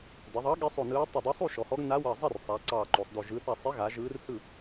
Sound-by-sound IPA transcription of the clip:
dɐ˩˧ðˤɑ˨˥ ɠi˨˥sˤo˧˩ nɯː˨˥ tˤʏ˧˩dˤe˨˥sˤu˥˩ ʃɔ˩˧hɔ˨˥ɡ na˨˥wɐ˧˩zˤɐ˥˩r sˤa˩˧ ǀɑː˧˩ǃo˩˧sˤdo˧˩ ʒɯ˩˧θa˧˩sˤe˨˥ɣa˩˧ ʒɯː˨˥rhɯ˥˩

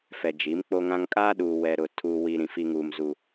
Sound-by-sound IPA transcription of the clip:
fɛ˨d͡ʒi˨˦mk͡po˦ŋã˦ŋ kʼaː˦ɗuː˨wɛ˨ɾʊ˨ tʰuː˨ wi˨ɾĩ˨ fi˦ŋuː˦m zu˦

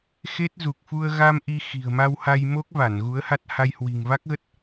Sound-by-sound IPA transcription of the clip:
xe˦˥t̚zu˨˩k̚ fu˧ə̯ ɣa˧m ʔi˧xi̤˨˩ə̯ ma˧wha˧jmo˦˥k̚va˧˩n ɣu˨˦ə̯ha˦˥t̚ha˧j hwi̤˨˩ŋva˦˥k̚ɣə˦˥t̚

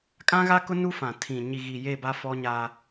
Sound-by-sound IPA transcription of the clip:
kʼã˦ɣa˦kʊ˦ nu˦fã˨tʰĩ˨ ɲi˨ɣi˨je˦˨ ba˦fɔ˦ɲa˦

